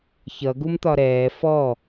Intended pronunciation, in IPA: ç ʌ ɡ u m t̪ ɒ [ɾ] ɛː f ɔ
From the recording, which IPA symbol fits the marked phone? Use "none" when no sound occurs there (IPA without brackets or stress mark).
ɾ